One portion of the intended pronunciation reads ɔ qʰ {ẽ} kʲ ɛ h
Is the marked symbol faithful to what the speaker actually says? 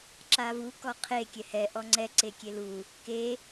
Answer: no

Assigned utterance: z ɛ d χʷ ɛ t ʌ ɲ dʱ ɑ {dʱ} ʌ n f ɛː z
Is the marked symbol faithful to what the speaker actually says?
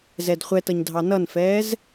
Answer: no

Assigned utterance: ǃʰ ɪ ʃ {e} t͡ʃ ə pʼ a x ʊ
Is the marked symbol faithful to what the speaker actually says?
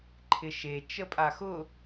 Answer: yes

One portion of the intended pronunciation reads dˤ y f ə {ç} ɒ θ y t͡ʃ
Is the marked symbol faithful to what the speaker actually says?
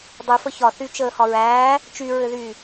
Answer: yes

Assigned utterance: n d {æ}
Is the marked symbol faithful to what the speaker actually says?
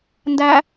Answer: yes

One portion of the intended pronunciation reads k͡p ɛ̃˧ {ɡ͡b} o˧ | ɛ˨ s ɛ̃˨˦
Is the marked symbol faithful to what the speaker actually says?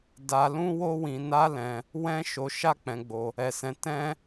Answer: yes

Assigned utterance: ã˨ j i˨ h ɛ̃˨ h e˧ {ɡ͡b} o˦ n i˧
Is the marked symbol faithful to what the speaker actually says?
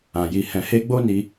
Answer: yes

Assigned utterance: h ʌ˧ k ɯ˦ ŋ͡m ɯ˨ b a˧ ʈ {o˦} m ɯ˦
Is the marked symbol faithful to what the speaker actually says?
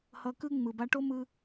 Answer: yes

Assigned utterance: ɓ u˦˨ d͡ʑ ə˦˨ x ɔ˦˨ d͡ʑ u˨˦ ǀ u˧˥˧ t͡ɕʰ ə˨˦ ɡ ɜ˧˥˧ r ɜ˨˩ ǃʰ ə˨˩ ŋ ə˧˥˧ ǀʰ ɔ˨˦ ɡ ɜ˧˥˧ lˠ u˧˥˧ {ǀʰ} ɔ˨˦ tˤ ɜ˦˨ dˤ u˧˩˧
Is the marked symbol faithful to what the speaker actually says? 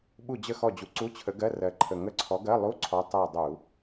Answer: yes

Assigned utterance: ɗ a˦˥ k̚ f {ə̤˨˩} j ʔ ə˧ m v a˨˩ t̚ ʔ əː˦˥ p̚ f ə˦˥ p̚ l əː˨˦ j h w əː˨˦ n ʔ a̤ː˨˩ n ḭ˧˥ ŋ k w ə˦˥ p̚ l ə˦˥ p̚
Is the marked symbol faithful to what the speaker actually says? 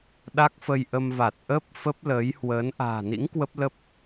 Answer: no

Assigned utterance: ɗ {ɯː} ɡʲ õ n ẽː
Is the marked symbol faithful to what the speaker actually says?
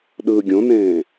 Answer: yes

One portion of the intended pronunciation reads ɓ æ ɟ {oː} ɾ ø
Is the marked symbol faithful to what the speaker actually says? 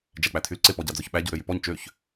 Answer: no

